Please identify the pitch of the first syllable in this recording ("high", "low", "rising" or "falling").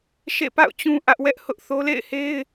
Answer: falling